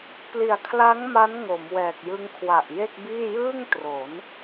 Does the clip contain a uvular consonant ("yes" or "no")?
no